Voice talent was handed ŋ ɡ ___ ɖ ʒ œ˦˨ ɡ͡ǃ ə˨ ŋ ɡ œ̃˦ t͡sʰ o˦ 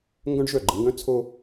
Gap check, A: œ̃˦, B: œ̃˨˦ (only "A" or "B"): A